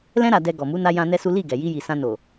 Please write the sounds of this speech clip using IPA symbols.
l ɛ̃˧ ɾ a˨ d ɛ˨ ɡ ɔ˨ m u˨˦ n a˧ j ã˧ n ɛ˦ s u˦ l i˦˨ ɡ ɛ˨ j i˧ j i˨ s ã˧ n o˨

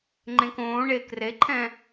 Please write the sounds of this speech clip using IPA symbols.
ŋ͡ǃ ẽ k õː ɳ e k r e ǃʰ ɛ̃

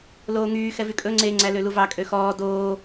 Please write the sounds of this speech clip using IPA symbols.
l oː ŋ yː x ɛ v y kʼ ɵ ŋ͡ǀ e ŋ͡ǀ æ l ø l u v ɑ kʼ ø x ɔː d oː

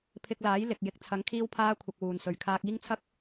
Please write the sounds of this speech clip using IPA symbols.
pʰ ɪ˧ k̚ l aː˨˥ j l ɪ˨ k̚ j ɪ˨˥ k̚ t͡sʰ ɐ˨˥ ŋ kʰ iː˥ w pʰ aː˥ kʷʰ ɐ˧ k̚ w uː˨ n s ɵ˨ ɥ kʰ aː˧ k̚ iː˥ ŋ t͡sʰ ɐ˥ k̚

